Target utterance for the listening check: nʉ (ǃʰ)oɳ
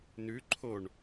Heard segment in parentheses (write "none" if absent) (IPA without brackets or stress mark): ǃʰ